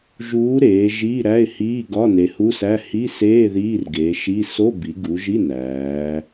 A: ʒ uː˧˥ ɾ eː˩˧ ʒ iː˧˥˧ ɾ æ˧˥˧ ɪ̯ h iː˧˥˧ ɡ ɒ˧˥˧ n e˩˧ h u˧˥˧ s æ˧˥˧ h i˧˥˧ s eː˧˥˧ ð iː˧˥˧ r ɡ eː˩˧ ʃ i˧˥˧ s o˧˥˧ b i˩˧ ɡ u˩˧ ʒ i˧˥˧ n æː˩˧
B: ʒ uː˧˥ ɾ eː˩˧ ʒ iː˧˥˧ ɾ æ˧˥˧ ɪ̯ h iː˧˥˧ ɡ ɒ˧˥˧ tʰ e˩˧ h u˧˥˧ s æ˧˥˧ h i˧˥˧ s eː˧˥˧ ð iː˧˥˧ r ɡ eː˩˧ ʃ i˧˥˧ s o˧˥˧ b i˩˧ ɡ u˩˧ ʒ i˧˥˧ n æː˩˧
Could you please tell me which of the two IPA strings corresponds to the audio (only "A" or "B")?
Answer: A